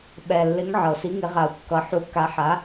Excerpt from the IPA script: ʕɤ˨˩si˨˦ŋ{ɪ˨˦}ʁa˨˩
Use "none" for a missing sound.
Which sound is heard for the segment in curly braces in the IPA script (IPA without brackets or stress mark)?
ɪ˨˦